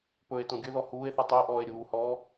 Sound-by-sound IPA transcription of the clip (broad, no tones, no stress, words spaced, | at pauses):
pɵe̯ tõɡʲɵðɔ huːe̯θɯ tˤəːʔɔːe̯ ɾʲuːhɔː